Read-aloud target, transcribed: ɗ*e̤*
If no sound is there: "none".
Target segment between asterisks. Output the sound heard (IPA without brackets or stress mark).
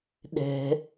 ɛ̤